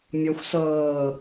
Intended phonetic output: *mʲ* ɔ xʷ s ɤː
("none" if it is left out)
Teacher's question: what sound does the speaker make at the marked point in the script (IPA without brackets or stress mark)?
mʲ